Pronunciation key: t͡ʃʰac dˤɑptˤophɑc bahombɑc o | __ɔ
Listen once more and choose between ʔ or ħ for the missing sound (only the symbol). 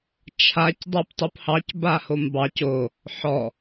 ħ